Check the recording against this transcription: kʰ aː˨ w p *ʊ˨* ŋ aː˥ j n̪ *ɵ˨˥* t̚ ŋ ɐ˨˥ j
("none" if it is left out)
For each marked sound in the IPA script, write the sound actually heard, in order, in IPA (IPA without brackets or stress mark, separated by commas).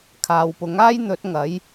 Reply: ʊ˨˥, ɵ˨˥